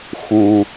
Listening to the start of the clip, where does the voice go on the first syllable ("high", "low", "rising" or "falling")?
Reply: low